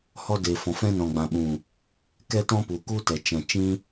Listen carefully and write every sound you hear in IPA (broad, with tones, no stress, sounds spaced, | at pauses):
h ɔ˧ d eː˨ f ɔ̃˨ f ɛ̃˧ n ɔ̃˨ ɡ͡b ã˨ ɓ ũ˨ | k ɛ˦ t ɔ̃˦ p u˨ k u˦ t ɛ˨ t͡ʃ ɛ̃˨ t͡ʃ ĩ˦